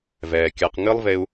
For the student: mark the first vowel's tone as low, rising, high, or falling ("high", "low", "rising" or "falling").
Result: low